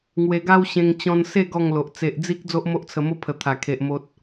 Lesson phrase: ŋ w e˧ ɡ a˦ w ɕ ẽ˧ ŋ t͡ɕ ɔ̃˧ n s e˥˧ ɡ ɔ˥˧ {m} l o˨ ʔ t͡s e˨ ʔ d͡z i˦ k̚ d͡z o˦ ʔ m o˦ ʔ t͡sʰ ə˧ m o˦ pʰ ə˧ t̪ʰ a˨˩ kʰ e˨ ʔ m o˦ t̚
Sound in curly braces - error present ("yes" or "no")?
yes